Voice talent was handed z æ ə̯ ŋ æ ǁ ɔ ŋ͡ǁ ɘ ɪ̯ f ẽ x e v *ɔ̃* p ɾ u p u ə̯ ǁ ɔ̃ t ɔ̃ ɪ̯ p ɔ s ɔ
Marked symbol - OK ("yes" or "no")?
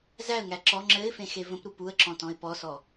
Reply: no